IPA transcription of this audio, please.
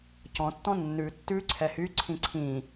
c ɔ̃ tː ɔ̃ nː ʉ tː ʉ ǀʰ ɛ h y ǀʰ ĩ ǀʰ ĩ

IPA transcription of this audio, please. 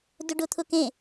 d ʊ ɖ ʊ t̪ʰ ʊ k ẽ

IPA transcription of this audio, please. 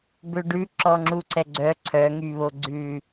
b ø ɖ ʉ ǁ ɔ ŋ͡ǁ u ǀ ɛ ɡ͡ǀ œ ǀʰ œ ŋ y β o ɡ͡ǀ ʉ

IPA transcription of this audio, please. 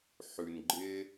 ħ ʉ˨ n ɡ͡ǃ ɪ˦

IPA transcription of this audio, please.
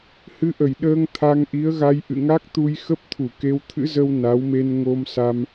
h ɨ˧ ʔ ə˧˩ j ɗ əː˧ ŋ t̪ʰ a˧ ŋ ʔ i˨˦ ə̯ ɣ a˧ j ʔ ɨ̰˧˨ ŋ a˦˥ k̚ t̪ u˧ j x ə˦˥ p̚ t̪ʰ u˧˩ k e˧ w t̪ʰ ɨ̰˧˥ z ə˧ w n a˨˦ w m e˧ n ŋ o˧ m s a˧ m

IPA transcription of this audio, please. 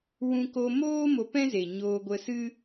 w ũ˧ k o˧ m oː˦ m o˧ p ɛ̃˦ z e˨ ɲ oː˧ ɡʷ ə˧ s ɨ˦

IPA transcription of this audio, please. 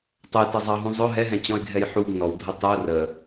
tˤ ə j t ʌ zˤ ɑ ɦ ũ zˤ ʊ ɦ ɛ ɦ ɛ̃ t͡ɕ ɔ̃ ɪ̯ ɡʱ ɛ j ħ u ɡ n ɔ w dʱ ə tˤ ə ʊ̯ r ə

